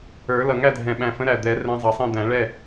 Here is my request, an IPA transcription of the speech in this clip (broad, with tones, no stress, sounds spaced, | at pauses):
ə˞˨˩˦ l ʌ˨˩ ŋ æ˥˨ dʱ ɛ̃˨˩ ɓ æ̃˨˩ f ə̃˨˦ ɾ æ˨˩ d̪ ɛ˨˩˦ r ɛ̃˨˦ zˤ ɑ˨˩ sˤ ɛ̃˥˨ d̪ æ̃˨˩˦ ɭ ɛ˥˨